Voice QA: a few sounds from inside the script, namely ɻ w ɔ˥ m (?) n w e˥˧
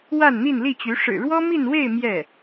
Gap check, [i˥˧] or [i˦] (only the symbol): i˥˧